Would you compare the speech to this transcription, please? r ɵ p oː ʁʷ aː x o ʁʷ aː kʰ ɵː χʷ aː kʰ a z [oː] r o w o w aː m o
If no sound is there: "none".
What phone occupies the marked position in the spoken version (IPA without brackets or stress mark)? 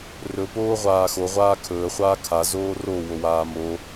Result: oː